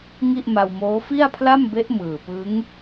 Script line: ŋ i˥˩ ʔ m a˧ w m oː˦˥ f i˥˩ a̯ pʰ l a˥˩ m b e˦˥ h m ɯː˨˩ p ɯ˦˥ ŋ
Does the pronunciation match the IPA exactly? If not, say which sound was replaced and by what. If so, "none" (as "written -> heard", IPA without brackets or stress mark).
h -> ʔ